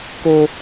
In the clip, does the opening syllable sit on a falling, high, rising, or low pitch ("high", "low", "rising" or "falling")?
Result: high